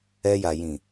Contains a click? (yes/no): no